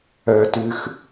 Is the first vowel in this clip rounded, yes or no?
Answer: yes